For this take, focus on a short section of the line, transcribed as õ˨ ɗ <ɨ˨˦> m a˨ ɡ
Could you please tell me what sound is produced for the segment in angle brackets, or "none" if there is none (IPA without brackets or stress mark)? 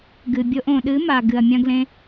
ɨ˨˦